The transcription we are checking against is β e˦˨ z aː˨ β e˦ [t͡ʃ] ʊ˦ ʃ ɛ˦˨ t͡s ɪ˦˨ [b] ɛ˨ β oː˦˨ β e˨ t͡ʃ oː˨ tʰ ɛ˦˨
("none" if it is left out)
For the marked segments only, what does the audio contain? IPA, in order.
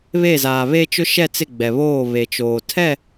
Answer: t͡ʃ, ɡ͡b

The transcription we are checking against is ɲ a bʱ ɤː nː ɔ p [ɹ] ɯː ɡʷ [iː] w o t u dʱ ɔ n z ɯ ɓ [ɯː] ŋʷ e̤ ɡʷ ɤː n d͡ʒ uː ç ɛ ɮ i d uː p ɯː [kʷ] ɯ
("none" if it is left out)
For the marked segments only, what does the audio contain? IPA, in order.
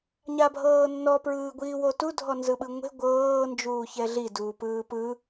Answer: ɹ, iː, ɯ, p

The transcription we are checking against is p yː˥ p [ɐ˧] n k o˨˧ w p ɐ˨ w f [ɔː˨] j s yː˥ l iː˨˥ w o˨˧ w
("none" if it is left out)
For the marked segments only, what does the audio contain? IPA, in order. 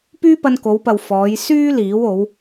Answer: ɐ˧, ɔː˨˧

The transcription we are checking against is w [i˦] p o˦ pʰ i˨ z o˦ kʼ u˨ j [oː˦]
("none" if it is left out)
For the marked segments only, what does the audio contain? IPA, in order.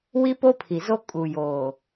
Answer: i˦, oː˨

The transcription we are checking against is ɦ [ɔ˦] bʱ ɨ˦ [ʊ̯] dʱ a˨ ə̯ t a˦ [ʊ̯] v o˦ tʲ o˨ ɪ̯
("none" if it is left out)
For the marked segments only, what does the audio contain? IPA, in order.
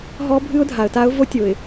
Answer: ɔ˦, ʊ̯, ʊ̯

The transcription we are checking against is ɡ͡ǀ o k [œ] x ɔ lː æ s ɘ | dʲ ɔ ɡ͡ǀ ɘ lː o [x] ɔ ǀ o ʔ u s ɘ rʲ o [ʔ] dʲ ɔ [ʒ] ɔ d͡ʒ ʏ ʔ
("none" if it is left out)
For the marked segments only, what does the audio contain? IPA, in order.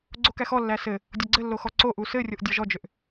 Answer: æ, x, ʔ, ʒ

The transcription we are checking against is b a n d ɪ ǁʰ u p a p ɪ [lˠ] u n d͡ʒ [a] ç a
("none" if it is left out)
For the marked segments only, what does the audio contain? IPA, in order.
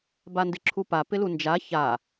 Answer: l, a

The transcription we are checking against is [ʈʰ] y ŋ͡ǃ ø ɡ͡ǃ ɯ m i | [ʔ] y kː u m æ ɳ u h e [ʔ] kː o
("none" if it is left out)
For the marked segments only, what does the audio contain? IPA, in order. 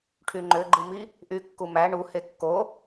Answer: ʈʰ, ʔ, none

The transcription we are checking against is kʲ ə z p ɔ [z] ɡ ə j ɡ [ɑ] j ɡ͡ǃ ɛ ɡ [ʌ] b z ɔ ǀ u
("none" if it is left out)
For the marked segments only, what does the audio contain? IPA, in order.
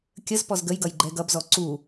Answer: z, ʌ, ʌ

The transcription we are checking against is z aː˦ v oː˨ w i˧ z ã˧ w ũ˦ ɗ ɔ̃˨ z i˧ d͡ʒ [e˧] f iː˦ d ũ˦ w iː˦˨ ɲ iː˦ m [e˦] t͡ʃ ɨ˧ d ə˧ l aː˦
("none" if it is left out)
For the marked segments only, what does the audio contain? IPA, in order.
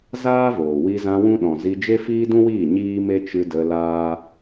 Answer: e˦, e˦

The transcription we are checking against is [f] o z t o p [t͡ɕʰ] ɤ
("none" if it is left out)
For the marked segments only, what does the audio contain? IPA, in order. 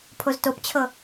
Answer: pʰ, t͡ɕʰ

